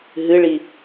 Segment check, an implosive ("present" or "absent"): absent